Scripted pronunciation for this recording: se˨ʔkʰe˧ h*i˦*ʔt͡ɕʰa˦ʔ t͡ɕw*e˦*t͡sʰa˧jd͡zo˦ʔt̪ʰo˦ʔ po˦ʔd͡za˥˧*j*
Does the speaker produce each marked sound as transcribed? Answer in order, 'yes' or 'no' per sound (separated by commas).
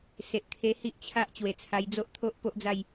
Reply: yes, no, yes